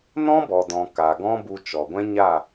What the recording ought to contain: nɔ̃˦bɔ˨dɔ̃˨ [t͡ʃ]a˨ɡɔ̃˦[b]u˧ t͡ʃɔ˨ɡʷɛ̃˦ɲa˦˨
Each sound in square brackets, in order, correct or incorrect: incorrect: k, correct

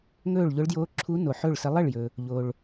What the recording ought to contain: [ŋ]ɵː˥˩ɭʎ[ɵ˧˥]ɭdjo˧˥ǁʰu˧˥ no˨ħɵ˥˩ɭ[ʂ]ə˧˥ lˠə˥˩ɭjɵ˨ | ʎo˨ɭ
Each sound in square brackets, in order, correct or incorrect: correct, incorrect: ʊ˧˥, incorrect: s

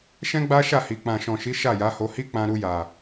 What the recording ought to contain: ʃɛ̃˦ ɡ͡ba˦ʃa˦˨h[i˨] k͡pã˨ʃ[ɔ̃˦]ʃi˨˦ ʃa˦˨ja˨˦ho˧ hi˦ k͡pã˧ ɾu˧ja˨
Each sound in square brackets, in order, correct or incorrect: correct, incorrect: ɔ̃˨

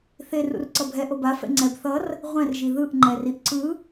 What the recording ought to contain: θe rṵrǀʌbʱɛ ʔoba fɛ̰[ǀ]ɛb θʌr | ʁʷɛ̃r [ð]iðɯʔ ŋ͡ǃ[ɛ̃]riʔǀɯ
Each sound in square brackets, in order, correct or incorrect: incorrect: ŋ͡ǀ, incorrect: ʒ, incorrect: ɛ

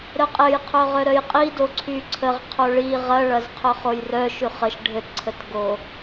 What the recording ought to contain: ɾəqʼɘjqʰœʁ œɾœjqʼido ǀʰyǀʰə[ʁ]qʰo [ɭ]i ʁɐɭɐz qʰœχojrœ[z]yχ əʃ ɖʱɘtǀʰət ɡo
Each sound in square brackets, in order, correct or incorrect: correct, correct, incorrect: ʃ

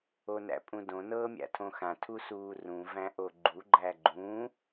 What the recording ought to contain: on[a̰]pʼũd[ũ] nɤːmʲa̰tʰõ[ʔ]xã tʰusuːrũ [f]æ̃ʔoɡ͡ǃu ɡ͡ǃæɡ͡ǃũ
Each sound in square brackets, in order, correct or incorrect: incorrect: æ̰, incorrect: õ, incorrect: none, incorrect: v

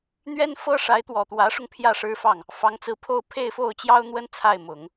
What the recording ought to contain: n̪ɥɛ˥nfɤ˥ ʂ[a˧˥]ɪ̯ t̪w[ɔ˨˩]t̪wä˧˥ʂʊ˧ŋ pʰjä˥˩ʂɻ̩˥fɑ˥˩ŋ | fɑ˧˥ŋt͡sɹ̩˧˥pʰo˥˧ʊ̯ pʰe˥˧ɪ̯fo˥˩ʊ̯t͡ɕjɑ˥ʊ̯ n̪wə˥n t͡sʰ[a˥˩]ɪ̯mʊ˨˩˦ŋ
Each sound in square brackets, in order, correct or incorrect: correct, correct, correct

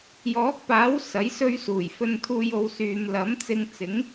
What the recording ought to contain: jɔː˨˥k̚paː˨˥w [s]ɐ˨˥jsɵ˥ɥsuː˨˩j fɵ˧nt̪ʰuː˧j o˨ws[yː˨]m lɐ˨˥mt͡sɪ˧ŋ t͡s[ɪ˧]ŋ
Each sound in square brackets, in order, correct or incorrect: correct, correct, incorrect: ɪ˨˥

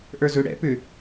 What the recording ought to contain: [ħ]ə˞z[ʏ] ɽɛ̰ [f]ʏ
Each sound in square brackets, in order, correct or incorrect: incorrect: ʔ, correct, incorrect: p

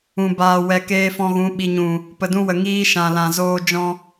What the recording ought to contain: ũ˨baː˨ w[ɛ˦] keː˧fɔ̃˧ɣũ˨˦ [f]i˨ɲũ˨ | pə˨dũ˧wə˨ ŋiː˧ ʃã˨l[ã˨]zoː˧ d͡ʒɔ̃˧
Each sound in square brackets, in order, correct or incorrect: incorrect: ɛ˨, incorrect: ɓ, correct

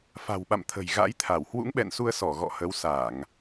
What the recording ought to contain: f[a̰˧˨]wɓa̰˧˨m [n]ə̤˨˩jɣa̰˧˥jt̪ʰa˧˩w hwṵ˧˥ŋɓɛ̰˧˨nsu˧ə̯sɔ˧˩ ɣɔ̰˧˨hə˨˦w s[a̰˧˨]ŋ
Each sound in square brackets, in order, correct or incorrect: incorrect: a̤˨˩, incorrect: t̪ʰ, incorrect: a˧˩˨

